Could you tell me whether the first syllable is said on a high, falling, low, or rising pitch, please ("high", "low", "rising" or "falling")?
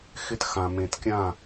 high